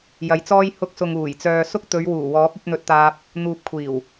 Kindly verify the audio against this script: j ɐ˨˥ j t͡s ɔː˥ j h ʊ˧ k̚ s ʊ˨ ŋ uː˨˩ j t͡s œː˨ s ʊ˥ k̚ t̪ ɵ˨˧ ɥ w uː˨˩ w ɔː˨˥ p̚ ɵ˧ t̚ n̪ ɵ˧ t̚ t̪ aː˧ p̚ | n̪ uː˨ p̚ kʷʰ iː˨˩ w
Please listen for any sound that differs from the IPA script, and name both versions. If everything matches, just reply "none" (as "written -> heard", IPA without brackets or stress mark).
none